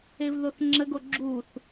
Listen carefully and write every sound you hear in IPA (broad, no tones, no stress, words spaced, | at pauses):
evðoθŋ͡ǁəɡo ɡ͡ǁuθ